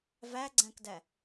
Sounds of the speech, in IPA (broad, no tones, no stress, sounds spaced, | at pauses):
v æ ɡ͡ǀ æ̃ k d æ